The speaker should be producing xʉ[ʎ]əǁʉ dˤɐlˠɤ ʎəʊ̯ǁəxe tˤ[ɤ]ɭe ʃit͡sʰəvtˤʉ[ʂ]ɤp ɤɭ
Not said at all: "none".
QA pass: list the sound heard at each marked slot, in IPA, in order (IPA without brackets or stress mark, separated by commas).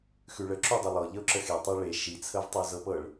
ɭ, ɤ, z